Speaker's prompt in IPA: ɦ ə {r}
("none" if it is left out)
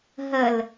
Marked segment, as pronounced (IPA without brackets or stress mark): l